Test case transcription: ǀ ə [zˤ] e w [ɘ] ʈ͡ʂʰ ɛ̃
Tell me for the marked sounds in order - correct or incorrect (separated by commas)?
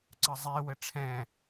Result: correct, correct